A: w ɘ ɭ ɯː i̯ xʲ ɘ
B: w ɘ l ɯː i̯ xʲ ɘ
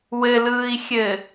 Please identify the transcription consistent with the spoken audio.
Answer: B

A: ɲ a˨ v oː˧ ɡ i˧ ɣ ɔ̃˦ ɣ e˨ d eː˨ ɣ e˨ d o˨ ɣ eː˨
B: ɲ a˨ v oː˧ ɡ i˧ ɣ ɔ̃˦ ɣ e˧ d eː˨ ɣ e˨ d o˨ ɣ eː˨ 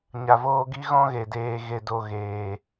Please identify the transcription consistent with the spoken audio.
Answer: A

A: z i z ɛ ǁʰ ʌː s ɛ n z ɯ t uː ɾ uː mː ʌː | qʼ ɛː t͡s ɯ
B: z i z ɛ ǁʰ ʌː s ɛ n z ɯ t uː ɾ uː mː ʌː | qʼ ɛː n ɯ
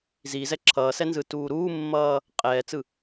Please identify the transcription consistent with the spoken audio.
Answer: A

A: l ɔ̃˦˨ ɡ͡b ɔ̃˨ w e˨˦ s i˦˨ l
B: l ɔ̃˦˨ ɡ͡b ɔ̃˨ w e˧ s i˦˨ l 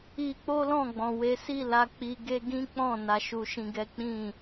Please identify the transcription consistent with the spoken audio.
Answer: A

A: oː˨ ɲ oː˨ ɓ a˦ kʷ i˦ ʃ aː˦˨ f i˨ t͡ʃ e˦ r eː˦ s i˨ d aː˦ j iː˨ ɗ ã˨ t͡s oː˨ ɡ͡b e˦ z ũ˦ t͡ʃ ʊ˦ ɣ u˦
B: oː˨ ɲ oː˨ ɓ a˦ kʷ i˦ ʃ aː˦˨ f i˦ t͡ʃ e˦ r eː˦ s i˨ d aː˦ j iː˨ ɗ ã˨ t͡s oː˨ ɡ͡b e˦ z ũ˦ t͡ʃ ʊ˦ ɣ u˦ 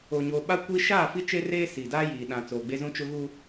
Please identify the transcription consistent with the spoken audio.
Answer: B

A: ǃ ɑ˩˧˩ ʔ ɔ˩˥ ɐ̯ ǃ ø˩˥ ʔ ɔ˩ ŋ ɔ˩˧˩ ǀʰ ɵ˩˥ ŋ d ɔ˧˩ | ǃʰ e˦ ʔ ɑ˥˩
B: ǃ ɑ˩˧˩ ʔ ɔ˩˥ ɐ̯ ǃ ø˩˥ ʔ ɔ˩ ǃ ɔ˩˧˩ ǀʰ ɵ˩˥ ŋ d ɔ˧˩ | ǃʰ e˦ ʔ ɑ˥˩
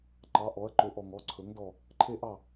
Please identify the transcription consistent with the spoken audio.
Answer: A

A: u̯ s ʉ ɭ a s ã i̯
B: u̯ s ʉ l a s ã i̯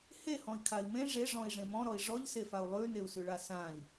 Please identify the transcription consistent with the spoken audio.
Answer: A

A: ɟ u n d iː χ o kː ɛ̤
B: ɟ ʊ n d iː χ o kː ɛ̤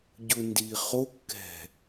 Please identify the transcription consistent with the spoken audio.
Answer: B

